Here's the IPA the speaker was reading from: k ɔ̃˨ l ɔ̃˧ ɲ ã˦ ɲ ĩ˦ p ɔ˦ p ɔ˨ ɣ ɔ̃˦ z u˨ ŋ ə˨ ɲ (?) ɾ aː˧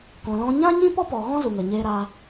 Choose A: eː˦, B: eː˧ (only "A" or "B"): B